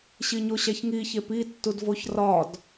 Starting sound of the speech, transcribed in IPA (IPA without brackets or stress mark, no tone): ɕ